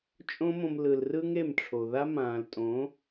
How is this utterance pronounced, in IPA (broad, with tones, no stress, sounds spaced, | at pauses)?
t͡ʃʼ õ˦ m õ˧ m l ɯ˨ l r ɯ˦ ŋ e˦˨ m ʈ͡ʂʰ o˨ ð a˦ m ãː˨ l tʼ õ˨˦